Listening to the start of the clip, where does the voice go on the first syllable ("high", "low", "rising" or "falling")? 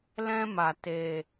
high